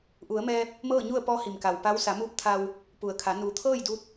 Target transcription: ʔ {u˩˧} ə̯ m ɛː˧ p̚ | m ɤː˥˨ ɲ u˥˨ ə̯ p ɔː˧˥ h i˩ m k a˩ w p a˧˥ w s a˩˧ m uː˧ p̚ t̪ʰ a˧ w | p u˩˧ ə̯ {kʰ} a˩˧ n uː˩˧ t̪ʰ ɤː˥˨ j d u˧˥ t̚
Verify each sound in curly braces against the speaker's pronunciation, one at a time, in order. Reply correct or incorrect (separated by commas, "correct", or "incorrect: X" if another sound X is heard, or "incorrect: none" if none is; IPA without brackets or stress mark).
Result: correct, correct